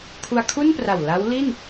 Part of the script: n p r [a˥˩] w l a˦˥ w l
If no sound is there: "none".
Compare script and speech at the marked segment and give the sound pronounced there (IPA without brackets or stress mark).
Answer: a˨˩